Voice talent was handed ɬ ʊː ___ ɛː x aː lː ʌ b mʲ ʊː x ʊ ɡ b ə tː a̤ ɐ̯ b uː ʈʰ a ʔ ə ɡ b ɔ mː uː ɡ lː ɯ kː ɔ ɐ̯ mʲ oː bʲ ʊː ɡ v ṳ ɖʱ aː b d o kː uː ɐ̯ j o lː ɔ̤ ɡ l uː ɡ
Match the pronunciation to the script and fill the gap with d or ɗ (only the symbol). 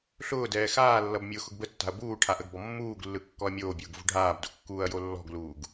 d